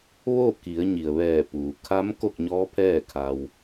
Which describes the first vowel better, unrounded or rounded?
rounded